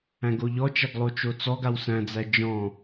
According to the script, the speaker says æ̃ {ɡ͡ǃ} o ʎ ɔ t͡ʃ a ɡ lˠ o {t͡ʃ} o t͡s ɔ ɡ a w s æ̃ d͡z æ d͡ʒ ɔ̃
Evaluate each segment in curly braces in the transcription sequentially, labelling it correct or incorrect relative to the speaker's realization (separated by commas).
incorrect, correct